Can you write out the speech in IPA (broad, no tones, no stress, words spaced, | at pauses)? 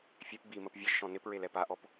fʲep bi məpvʲɘʒʃɔ̃ nɪpɹel ɛpaʔɔp